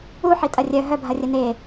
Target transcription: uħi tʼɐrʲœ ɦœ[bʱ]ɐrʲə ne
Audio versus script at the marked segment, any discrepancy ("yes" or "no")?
no